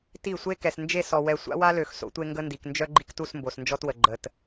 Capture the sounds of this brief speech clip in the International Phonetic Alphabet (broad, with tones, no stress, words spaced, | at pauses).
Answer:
ti˦˨sʷe˦ kɛ˨snd͡ʒe˦˨sɔ˨wɛ˨ sʷa̰˦wa˦lø˨x so̰˦tʷe˦ŋɡə˦ndi˨k nd͡ʒœ˦ɡ͡ǃi˦ktu˦˨s mbo˨snd͡ʒɔ˦twə˨ ɡ͡ǃə˨t